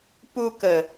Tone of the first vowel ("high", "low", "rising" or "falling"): low